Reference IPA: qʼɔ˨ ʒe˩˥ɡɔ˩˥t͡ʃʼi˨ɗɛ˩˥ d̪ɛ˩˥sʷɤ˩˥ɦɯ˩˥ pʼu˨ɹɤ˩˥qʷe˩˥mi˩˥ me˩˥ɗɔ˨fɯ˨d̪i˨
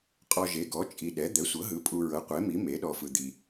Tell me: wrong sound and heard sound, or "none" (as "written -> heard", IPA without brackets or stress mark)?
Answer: none